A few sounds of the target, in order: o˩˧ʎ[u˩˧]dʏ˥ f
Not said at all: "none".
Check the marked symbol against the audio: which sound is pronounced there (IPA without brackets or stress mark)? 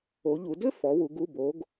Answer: u˩˧